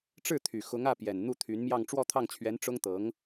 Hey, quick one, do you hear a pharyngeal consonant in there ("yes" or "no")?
no